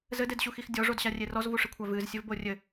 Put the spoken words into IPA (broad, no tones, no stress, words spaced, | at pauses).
zɘdedɕuxix dʲɔʐodɕarʲe rɔzvuʂɨkʷʰa vɨzsʲɘvbo rʲɘ